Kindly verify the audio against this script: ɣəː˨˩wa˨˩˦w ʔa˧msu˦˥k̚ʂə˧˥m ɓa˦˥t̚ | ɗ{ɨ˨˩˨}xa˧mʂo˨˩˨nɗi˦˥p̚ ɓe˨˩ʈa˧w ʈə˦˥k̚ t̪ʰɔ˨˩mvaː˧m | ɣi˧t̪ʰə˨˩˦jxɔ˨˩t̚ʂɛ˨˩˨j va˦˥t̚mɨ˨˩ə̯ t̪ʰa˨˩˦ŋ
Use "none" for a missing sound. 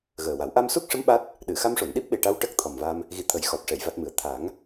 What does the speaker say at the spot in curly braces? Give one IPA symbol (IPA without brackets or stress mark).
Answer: ɨ˨˩˨